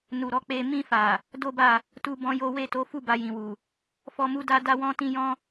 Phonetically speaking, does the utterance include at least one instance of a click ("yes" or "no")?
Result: no